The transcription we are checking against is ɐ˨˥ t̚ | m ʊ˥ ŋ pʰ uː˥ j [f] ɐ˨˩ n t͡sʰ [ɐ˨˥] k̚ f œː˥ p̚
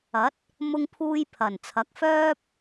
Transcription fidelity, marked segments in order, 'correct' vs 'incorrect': incorrect: pʰ, correct

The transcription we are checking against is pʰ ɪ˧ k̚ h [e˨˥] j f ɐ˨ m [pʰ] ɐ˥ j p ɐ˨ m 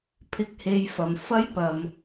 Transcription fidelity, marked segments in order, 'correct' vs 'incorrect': incorrect: e˧, incorrect: f

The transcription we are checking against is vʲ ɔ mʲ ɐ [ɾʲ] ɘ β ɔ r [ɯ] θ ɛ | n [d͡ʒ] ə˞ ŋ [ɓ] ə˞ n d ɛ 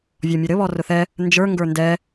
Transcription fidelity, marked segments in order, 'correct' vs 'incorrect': incorrect: ɾ, incorrect: ʊ, correct, incorrect: ɡ

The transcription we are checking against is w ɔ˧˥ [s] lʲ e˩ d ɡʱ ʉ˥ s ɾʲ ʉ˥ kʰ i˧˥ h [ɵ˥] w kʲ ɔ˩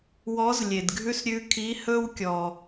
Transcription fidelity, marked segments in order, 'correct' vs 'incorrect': incorrect: z, correct

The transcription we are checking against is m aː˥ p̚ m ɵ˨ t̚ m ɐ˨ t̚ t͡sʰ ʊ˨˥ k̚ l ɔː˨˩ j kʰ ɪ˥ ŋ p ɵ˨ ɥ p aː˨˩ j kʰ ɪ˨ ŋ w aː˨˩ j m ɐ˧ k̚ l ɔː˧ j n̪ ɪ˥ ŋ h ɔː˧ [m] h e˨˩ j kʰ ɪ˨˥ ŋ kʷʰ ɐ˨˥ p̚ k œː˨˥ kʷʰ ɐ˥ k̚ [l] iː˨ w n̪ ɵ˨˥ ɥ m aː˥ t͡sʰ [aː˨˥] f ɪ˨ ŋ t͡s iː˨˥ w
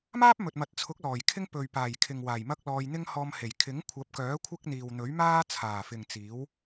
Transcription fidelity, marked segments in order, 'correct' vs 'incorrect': correct, incorrect: n̪, incorrect: aː˨˩

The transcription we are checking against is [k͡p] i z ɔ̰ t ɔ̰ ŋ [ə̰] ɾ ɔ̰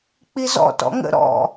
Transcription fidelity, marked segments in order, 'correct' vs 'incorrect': correct, correct

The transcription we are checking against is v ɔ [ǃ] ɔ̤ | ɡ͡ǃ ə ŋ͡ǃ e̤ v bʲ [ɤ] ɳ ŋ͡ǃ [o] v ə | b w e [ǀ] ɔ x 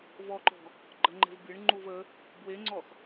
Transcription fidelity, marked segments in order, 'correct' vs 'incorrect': correct, correct, incorrect: u, incorrect: ŋ͡ǀ

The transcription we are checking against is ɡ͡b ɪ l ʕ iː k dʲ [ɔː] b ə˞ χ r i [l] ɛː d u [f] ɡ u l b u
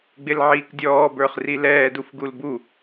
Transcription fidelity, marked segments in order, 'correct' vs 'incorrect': correct, correct, correct

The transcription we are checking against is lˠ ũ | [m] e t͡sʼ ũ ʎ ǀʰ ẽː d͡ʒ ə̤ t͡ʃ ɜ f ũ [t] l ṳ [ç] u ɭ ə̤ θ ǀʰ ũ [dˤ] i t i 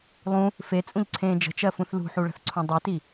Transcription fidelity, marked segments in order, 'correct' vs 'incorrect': incorrect: f, incorrect: θ, incorrect: ħ, correct

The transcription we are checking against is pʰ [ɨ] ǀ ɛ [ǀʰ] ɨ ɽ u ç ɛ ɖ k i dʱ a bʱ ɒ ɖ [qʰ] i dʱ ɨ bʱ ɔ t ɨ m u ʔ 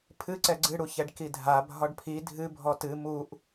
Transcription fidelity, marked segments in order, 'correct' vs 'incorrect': correct, incorrect: ɡ͡ǀ, incorrect: pʰ

